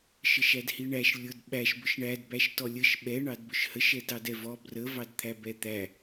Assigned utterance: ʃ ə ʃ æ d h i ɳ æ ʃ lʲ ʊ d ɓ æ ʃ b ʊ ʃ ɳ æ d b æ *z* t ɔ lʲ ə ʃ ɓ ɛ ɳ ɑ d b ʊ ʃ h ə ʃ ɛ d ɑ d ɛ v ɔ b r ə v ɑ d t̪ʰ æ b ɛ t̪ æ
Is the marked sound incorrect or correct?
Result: incorrect